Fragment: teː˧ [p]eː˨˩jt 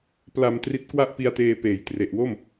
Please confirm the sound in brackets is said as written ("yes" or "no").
yes